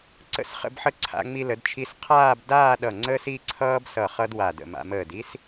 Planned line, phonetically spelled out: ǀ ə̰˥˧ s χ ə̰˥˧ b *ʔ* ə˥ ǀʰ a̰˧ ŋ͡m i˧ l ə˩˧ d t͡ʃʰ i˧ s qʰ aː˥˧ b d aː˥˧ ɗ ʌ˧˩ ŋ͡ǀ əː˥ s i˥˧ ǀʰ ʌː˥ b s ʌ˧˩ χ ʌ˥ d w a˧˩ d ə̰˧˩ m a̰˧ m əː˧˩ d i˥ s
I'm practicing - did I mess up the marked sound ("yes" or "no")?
yes